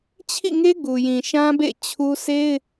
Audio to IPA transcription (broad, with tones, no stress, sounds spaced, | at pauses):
t͡ɕʰ ḭ˦˨ ŋ e˦ ɡ u˨ j ĩ˨ ʃ ã˦ b ḛ˦˨ t͡ɕʰ u˦ s e˦ ɪ̯